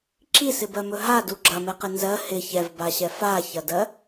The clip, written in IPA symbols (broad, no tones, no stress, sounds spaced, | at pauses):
ǁ i s ɪ b ɜ m ɵ ɦ a d u ɡ͡ǁ ɐ m ɛ q ɪ n z ɜ h ɪ ç ɛ v b a ɕ ɛ f a ç ɐ d ɜ